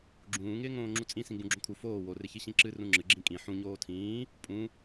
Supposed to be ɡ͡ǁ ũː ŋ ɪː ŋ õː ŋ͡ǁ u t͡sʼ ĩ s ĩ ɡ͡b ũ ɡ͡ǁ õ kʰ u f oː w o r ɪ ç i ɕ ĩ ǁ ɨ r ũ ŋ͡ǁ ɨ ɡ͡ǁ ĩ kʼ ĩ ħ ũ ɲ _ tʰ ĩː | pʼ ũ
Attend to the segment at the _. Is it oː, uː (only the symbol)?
oː